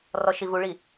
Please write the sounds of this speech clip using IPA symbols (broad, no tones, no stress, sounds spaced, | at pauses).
r ɔ ʃ i v u ɭ i